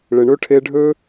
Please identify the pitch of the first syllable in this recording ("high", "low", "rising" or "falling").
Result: low